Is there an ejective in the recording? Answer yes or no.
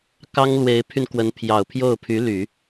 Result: no